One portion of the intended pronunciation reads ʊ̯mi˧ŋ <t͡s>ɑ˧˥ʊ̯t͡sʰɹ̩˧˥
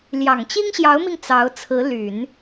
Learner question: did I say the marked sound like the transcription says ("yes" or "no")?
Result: yes